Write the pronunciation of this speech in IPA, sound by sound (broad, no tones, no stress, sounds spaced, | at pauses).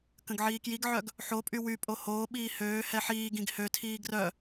k ə̃ ɡ ʕ iː k j i ɡ ʕ œ ɡ | ħ o pʼ y w y pʼ o h oː ɓ iː h øː h ɛ ħ iː ɡ ĩ ɡ h ø tʰ iː ɡ r œ